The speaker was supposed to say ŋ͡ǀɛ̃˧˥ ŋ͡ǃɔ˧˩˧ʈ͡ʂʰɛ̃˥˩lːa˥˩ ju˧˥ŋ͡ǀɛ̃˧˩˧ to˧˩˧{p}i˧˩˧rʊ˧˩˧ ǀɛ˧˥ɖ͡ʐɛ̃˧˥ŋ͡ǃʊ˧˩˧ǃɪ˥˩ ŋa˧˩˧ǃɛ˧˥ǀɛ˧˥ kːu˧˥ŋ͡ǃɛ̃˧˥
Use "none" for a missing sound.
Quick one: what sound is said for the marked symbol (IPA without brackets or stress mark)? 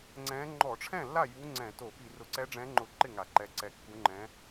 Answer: p